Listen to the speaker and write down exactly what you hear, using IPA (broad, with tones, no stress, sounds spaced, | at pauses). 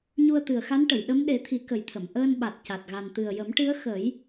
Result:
ɲ u˧ ə̯ t̪ ɨ˨˩ ə̯ x a˧˥ n ʈ ə˨˩˨ j ɗ ə˧˥ m ɗ e˨˩˦ t̪ʰ i˨˩˦ k ə˨˩ j t̪ʰ ə˨˩˨ m ʔ əː˧ n ɓ a˨˩ t̚ c a˨˩ t̚ ɣ a˨˩ n t̪ ɨ˨˩ ə̯ j ə˨˩˦ m ʈ ɨ˧˥ ə̯ x ə˨˩˦ j